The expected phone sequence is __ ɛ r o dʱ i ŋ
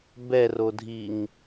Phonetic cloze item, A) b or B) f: A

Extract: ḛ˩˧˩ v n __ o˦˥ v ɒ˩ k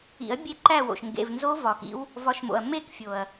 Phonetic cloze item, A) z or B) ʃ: A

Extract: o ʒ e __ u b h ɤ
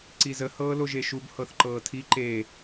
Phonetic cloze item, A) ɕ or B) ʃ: B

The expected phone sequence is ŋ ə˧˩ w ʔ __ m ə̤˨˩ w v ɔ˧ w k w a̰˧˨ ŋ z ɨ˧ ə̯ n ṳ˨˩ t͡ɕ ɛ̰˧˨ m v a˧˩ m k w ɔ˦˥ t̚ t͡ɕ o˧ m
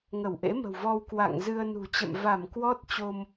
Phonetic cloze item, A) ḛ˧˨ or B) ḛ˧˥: B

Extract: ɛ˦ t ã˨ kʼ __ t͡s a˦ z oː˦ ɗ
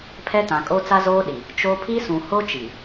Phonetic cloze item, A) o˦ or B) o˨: A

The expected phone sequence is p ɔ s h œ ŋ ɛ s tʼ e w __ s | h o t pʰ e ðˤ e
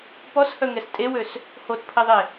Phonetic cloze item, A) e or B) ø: B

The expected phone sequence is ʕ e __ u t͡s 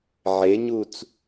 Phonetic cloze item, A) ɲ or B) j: A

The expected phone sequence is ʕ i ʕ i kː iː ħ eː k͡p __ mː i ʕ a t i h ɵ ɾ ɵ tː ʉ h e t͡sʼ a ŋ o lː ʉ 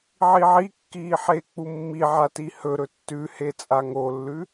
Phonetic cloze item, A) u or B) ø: A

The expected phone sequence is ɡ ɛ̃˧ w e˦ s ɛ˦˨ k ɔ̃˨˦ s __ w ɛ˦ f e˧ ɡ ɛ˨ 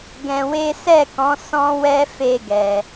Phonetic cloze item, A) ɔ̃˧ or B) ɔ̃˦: B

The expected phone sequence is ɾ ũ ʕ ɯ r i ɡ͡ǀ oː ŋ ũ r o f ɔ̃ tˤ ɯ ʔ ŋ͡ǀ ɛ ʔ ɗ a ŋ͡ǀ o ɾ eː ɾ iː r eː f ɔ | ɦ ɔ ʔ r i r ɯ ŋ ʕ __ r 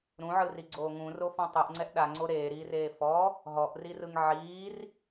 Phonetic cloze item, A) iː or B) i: A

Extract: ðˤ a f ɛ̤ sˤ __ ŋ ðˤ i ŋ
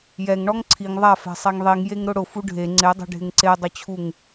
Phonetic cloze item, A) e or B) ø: A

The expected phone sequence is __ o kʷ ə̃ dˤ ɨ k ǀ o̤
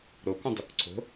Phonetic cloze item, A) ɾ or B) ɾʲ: A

